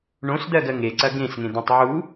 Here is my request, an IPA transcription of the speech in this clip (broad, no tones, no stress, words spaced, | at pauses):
ɳõsd̪ɜɡɜ ŋeǀɐ ɡẽsŋẽd̪õtˤ ʕu